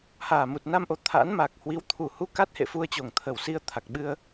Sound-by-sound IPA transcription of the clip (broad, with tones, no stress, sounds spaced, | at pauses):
h aː˨˩ m u˨˩ t̚ n a˧ m ʔ o˨˩ t̪ʰ a̰ː˧˥ n m a˨˩ k̚ h w i˨˦ w t̪ʰ u˨˩ h u˧ k a˦˥ t̚ h ḛ˧˨ f u˧ ə̯ t͡ɕ o˨˩ ŋ t̪ʰ ə˨˩ w s i˧ ə̯ t̪ʰ a˨˩ k̚ ɓ ɨ˧ ə̯